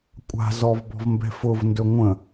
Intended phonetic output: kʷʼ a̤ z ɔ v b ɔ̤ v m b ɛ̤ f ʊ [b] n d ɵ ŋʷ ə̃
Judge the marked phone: incorrect: v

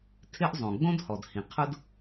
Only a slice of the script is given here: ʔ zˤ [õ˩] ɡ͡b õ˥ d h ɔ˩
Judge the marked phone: correct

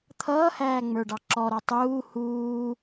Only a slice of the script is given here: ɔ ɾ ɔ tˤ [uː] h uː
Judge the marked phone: correct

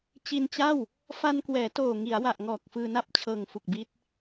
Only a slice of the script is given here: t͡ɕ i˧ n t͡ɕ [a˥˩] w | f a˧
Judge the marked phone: correct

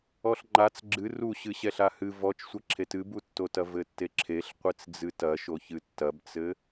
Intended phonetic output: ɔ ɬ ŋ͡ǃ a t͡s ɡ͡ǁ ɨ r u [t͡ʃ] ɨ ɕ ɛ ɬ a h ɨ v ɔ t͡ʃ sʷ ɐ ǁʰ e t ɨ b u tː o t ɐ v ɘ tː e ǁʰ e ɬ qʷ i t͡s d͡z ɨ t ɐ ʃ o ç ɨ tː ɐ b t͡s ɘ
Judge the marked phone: incorrect: ɕ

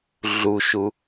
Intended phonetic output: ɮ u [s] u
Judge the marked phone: incorrect: ʃ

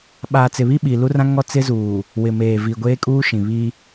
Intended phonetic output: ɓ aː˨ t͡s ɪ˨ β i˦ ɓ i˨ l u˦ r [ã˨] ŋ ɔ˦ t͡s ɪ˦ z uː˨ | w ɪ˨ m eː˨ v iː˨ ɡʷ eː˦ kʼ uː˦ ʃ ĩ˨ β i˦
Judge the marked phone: incorrect: ã˦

